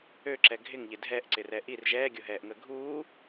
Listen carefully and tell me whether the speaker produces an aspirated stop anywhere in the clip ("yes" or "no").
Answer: no